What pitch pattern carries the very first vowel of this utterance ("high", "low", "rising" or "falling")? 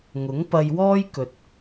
rising